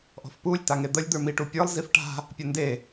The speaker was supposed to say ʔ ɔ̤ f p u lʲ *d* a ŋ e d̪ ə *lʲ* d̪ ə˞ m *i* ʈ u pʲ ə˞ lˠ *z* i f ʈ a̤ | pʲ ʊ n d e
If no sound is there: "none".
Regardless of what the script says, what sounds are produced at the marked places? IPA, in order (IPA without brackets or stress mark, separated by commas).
t, lʲ, i, z